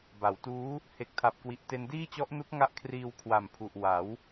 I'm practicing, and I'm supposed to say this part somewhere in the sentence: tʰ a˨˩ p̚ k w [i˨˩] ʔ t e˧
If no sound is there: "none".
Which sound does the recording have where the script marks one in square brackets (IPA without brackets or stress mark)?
i˨˩